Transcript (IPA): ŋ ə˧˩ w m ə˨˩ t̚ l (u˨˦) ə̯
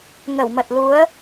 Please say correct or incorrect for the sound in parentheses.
correct